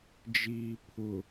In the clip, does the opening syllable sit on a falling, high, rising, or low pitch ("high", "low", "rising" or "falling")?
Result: low